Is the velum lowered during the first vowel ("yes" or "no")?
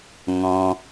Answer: yes